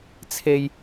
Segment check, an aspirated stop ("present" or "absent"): present